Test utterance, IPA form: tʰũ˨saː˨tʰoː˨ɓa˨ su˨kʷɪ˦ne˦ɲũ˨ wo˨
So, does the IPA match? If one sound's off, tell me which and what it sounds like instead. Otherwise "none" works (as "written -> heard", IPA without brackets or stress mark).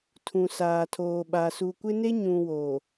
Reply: none